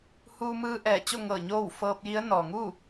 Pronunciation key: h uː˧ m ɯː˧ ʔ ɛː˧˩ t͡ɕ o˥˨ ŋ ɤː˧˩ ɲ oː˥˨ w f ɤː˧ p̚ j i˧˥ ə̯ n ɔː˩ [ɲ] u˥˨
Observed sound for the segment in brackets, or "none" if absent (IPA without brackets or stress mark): ŋ